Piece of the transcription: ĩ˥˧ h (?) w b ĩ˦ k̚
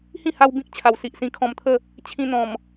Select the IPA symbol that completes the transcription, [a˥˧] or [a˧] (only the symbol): a˧